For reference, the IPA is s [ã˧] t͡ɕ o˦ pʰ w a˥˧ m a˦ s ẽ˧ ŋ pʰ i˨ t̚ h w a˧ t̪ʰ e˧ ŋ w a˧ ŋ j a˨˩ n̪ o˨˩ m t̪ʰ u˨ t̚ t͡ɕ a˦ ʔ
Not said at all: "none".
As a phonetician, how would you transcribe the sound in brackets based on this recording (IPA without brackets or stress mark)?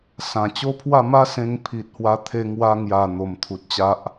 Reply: ã˨˩